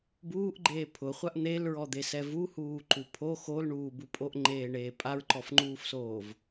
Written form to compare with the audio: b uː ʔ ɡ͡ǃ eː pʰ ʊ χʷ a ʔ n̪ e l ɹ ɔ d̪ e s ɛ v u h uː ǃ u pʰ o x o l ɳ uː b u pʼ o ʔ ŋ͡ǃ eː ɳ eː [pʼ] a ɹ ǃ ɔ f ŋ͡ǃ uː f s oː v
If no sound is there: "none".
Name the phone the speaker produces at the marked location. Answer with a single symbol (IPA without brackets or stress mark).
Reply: pʼ